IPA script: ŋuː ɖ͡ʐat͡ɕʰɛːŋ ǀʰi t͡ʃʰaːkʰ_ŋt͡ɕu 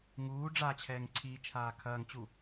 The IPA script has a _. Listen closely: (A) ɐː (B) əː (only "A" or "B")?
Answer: A